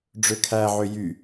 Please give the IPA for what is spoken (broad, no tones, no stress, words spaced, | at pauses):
ɖ͡ʐøkʰæʕø jy